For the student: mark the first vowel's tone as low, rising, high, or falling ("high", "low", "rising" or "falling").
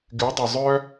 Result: rising